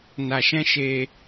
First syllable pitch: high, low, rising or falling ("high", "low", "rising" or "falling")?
low